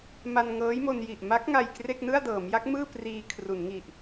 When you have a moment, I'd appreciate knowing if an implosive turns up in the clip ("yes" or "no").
no